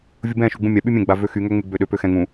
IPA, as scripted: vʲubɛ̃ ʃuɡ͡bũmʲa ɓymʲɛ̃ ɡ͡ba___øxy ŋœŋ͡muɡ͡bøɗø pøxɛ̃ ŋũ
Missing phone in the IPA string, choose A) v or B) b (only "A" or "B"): A